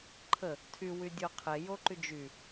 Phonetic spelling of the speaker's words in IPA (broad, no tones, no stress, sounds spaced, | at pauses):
ǃʰ ə | tʰ y w y dʲ o qʰ e j o ǃ y d͡ʒ y